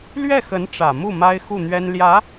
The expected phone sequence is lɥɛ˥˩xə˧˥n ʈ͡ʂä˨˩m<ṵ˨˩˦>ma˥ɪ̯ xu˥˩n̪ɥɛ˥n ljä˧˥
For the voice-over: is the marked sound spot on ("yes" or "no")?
no